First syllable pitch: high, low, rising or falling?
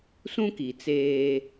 high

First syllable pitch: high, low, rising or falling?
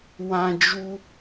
high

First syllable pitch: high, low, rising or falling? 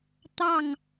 falling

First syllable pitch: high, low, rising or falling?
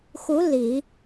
rising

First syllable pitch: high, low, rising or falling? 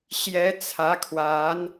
rising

